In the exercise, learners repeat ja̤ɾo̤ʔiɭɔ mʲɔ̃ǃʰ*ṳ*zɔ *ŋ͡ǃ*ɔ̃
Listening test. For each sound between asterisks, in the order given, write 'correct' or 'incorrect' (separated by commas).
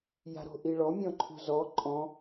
correct, incorrect